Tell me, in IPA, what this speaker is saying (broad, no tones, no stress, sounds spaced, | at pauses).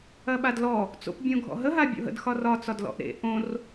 ɐ ɓ a d l ɔ | t͡s o̰ p bʲ õ ɡʱ ɔ̰ ɦ ə ɦ a bʲ o̰ ɦ ə̰ d x ɒ r ɒ t͡s ɒ d l ɔ̰ ʔ ɾ ḛ ʔ õ r